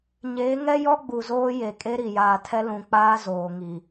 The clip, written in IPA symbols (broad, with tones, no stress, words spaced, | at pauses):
ɲeː˨˦ŋɛ˦jɔ˦ ɡ͡bu˨zoː˦je˨ kʼe˦ɾi˨jaː˨tʰɛ˦ lũ˨k͡paː˦ zoː˨ŋi˨